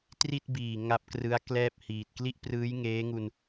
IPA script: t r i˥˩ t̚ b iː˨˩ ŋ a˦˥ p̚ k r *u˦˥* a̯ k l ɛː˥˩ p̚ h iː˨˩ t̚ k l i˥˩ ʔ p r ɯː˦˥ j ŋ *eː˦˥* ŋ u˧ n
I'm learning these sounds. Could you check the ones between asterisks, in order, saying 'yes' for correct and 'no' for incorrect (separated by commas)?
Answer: no, yes